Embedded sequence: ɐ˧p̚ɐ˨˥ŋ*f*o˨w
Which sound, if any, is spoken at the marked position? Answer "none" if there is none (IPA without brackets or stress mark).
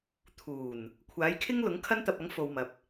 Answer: f